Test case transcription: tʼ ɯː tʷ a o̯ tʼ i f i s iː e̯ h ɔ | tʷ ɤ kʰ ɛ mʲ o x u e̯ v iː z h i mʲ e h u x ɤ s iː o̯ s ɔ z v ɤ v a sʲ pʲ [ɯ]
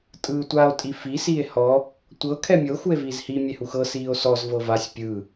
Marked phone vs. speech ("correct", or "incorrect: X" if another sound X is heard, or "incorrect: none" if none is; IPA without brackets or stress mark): correct